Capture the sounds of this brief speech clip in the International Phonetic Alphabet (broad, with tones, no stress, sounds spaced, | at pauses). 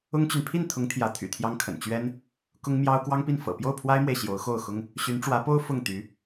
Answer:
ʊ˥ ŋ t͡ɕ y˨ n pʰ i˥˩ n t̪ʰ ʊ˧˥ ŋ t̪ʰ j ä˧˥ t̪ʰ y̰˨˩ t̪ʰ j ɑ˥ ŋ kʰ ə̰˨˩ n t͡ɕ ɥ ɛ˥ n | k ʊ˥ ŋ m j ɑ˥ ʊ̯ k w ɑ˥ ŋ p i˥˩ n f ɤ̰˨˩ p j o˥˩ ʊ̯ pʰ w a˥ ɪ̯ m w e˨ ɪ̯ ɕ j o˧˥ ʊ̯ x o˥˩ ʊ̯ x ʊ˥ ŋ | ɕ y˧˥ n ʈ͡ʂ w ä˧˥ p o˥ ʊ̯ f ʊ˥˩ ŋ t̪ y˧˥